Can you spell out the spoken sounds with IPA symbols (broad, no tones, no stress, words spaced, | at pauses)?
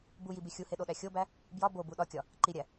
bujibi xʲuheɗoɗæ xʲobæ | bjɒ bobu ɗɒkʲɒ | ǃiɾʲæ